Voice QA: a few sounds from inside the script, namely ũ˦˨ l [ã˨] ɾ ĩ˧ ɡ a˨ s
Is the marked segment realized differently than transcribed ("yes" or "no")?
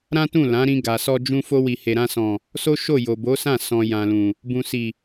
yes